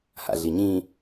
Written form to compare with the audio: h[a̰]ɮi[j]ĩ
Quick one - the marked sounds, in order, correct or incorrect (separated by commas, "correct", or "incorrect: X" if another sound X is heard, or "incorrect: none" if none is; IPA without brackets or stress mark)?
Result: correct, incorrect: ɲ